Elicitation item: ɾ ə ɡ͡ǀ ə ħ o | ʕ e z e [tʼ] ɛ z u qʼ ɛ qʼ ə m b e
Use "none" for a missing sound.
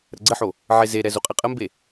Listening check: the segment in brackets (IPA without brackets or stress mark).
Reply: ɾ